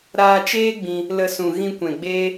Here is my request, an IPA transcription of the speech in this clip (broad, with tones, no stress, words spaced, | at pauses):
ɾaː˧t͡ʃeː˦ɡ͡bĩ˧ | lə˨ sũ˨ ɣĩ˧kʷɛ̃˨ɡ͡beː˦